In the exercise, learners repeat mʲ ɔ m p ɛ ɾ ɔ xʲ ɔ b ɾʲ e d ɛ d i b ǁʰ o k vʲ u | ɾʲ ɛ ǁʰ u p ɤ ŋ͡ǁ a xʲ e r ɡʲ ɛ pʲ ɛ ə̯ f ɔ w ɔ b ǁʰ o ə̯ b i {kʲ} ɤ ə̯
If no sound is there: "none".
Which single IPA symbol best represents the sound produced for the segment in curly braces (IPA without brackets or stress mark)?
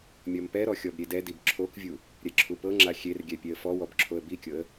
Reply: kʲ